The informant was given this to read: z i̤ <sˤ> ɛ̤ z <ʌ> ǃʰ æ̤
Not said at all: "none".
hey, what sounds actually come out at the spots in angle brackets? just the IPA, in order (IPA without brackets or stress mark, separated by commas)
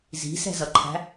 s, ʌ